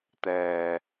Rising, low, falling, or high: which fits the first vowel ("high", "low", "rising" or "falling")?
low